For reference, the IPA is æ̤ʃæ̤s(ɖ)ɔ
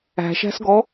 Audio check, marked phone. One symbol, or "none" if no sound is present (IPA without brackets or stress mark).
ɡ